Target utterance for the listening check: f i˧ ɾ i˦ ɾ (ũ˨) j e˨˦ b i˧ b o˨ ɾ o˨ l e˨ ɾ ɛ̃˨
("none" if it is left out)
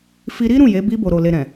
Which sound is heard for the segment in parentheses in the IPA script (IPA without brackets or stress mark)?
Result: ũ˦˨